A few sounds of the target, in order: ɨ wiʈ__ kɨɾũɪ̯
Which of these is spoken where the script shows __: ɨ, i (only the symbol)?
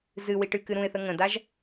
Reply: ɨ